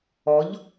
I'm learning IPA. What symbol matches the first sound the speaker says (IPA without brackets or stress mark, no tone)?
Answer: ɔ